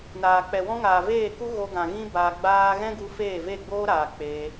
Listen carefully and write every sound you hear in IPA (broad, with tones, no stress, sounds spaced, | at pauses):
n aː˨ k͡p ɛ˨ w ɔ̃˦ ŋ aː˨ v eː˦˨ k u˦ ɣ o˧ ɡ ã˨ ɣ ĩ˦ b a˧ ɡ͡b aː˦ ɣ ɛ̃˦ ɡ u˧ f eː˦˨ v e˦˨ ɡ͡b oː˦ ɾ aː˨ k͡p eː˧